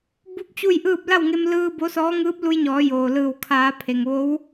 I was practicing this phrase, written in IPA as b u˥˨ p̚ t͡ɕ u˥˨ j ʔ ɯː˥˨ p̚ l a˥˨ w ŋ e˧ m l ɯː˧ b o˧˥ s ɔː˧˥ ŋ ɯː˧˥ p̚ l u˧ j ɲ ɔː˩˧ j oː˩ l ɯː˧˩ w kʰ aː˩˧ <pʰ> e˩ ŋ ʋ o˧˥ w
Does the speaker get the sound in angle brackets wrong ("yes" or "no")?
no